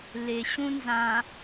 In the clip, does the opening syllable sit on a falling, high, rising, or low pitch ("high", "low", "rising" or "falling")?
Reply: low